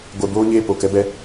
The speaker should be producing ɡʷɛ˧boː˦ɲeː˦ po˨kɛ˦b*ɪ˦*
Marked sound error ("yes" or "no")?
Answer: yes